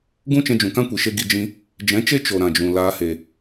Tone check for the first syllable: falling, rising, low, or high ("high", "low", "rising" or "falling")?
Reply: high